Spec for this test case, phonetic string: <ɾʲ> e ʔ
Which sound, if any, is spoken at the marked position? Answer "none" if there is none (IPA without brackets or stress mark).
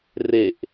r